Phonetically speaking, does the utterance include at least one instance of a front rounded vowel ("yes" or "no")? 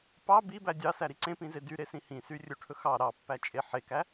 yes